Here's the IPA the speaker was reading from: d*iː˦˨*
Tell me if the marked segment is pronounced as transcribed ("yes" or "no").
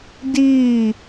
yes